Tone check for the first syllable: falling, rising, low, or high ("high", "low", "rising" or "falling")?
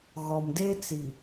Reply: low